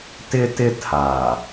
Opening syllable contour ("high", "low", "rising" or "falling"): high